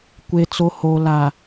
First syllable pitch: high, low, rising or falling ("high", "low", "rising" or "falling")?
low